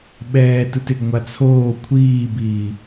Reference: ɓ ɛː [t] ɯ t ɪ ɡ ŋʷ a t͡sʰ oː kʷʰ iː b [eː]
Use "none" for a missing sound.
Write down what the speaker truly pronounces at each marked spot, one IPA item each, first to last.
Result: t, iː

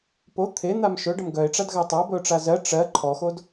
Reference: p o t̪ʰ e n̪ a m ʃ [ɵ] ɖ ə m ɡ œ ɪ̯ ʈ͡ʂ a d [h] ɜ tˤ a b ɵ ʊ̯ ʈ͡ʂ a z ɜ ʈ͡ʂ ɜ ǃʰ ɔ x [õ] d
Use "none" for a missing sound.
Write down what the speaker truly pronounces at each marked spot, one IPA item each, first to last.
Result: ɵ, ɣ, o

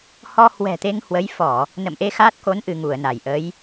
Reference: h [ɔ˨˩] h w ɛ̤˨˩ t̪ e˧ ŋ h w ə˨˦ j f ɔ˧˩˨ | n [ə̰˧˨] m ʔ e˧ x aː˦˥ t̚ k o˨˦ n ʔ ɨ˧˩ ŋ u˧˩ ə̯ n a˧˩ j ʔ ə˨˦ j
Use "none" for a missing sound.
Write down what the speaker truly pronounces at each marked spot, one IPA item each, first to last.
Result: ɔ˧, ə̰˧˨

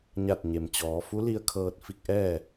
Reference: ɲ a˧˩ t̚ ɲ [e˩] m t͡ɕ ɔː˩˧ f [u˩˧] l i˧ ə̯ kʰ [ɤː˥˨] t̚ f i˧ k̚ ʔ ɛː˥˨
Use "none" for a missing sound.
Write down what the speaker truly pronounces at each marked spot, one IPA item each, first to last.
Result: e˩, u˧˥, ɤː˧

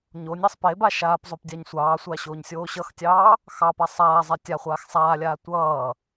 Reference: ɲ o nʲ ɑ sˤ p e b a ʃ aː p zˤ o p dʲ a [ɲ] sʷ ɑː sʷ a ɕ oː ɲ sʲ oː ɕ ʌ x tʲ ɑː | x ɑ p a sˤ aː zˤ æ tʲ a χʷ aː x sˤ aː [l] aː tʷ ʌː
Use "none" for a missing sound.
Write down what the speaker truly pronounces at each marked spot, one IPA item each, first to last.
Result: ɲ, lʲ

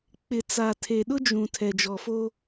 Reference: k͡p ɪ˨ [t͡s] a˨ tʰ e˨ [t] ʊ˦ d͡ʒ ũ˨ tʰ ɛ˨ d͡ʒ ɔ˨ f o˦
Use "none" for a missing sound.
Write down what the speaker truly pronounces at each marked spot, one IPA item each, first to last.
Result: t͡s, ɗ

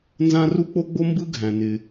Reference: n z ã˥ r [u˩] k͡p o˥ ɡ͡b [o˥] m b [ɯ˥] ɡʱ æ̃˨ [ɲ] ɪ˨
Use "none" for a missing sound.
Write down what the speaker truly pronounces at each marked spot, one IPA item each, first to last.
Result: u˥, o˥, ɯ˥, n

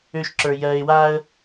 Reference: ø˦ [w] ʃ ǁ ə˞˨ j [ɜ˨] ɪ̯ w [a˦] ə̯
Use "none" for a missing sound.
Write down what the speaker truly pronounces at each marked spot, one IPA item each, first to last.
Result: none, ɜ˨, a˦

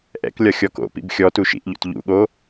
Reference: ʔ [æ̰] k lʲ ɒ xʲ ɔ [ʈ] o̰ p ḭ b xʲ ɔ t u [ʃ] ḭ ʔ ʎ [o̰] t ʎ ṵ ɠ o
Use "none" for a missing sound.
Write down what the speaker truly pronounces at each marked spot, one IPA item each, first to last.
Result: ɛ̰, k, ʃ, o̰

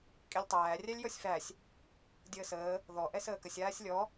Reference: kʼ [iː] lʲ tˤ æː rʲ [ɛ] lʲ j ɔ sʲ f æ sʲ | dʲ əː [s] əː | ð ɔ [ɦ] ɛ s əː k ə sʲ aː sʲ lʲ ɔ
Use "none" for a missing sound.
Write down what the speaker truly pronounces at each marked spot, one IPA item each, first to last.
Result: i, æ, s, ʔ

